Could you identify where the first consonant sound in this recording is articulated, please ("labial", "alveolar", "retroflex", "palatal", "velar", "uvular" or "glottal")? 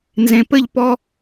alveolar